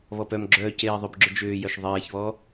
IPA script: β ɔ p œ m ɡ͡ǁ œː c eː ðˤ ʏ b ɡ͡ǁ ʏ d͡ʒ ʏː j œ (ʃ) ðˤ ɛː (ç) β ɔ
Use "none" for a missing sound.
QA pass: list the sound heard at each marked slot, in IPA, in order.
ʃ, ç

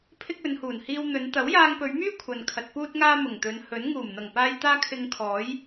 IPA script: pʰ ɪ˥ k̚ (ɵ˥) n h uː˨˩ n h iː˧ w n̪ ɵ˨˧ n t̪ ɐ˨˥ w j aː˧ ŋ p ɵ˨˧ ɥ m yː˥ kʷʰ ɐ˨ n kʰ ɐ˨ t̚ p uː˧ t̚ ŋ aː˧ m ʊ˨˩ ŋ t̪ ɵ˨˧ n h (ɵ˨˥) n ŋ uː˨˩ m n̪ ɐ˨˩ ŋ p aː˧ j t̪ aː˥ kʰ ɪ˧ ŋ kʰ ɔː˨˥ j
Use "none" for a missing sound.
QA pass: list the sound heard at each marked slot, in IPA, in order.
ɵ˨˧, ɵ˨˥

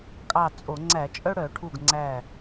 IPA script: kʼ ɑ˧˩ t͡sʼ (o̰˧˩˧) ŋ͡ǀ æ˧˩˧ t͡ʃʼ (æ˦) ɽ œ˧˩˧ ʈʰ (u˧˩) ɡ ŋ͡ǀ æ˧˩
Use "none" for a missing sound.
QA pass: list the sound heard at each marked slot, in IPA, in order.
o˧˩˧, œ˦, u˧˩

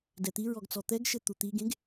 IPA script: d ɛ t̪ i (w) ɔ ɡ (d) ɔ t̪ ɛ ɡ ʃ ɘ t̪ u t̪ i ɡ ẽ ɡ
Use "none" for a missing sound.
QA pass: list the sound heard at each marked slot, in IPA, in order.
ɹ, t͡s

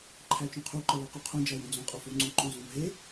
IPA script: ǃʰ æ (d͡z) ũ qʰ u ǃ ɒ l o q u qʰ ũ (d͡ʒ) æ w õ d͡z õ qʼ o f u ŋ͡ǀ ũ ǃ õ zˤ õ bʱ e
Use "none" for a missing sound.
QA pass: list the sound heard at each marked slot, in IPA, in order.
t͡ʃ, d͡ʒ

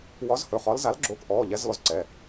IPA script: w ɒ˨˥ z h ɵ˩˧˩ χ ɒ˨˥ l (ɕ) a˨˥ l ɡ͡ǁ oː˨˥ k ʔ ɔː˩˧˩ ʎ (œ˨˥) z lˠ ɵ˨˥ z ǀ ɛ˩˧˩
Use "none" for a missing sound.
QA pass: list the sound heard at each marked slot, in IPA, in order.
z, ɛ˨˥

